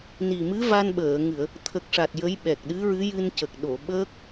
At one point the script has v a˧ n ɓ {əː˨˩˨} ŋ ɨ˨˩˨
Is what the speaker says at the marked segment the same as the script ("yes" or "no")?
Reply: yes